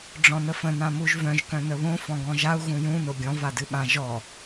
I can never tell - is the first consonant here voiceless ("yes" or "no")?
no